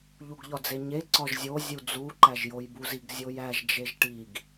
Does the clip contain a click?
yes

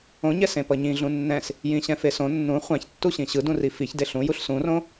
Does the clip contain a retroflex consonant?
no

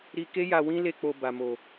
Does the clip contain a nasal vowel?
yes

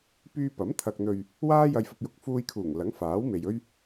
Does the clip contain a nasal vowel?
no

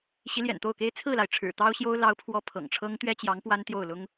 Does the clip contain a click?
no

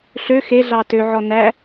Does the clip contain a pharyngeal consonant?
yes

